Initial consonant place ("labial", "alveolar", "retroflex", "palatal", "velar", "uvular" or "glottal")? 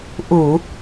glottal